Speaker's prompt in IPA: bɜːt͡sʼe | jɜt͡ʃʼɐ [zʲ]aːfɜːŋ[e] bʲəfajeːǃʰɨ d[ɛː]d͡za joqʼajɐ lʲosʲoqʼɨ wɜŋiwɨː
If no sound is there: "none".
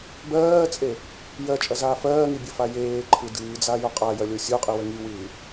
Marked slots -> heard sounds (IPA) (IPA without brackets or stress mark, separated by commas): z, i, ɨː